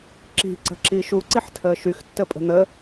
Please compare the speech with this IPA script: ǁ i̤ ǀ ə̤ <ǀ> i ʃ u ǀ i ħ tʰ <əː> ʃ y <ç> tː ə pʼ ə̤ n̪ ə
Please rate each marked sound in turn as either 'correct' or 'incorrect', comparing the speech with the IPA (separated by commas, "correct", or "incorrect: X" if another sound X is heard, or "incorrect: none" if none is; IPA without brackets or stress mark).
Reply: incorrect: ǁ, correct, incorrect: x